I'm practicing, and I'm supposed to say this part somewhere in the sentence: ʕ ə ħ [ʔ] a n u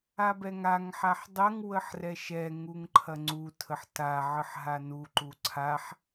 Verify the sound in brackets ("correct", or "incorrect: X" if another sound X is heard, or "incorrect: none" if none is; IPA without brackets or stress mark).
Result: incorrect: ɦ